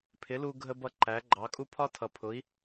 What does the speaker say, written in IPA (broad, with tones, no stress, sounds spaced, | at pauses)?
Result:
pʰ ɪ˩˥ l u˧ ɡʱ ə˧ b ʌ˥˩ ǃ æ˩˥ ɡ͡ǃ ɑ˩˥ kʼ u˥ pʰ ɒ˥ tʰ ʌ˩ pʰ ʊ˩˥ i̯